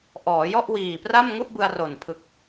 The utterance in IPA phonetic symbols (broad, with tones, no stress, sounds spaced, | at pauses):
ʔ ɔː˩˦ j ɔ˥˩ ʔ w iː˨˩ p r a˥˩ m ŋ u˥˩ ʔ b ɯ˧ a̯ r o˨˩ n pʰ ɯ˨˩ k̚